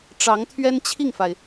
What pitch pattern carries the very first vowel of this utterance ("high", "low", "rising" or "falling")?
rising